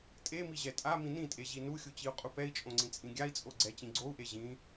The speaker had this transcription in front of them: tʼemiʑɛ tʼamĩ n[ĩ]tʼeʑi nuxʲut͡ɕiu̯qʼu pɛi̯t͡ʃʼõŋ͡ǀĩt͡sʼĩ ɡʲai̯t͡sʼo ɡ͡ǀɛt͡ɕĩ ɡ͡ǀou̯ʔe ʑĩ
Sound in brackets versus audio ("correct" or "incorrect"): correct